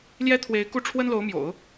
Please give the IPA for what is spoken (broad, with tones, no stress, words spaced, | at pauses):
ljɛ˥t̪ʰwe˧˥ɪ̯ku˥˩ ʈ͡ʂʰwə˥nlo˧˥ʊ̯mjo̰˨˩˦ʊ̯